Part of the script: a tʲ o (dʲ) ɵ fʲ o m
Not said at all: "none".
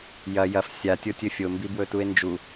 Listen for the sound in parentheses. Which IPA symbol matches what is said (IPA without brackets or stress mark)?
tʲ